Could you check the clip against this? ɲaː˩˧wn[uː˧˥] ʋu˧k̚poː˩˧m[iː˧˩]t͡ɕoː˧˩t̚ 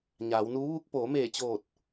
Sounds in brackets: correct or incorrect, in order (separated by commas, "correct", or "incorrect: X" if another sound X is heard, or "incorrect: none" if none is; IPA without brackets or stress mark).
correct, incorrect: eː˧˩